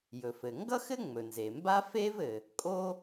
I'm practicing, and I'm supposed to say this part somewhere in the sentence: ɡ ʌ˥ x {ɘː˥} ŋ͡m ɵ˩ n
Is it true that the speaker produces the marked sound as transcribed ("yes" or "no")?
no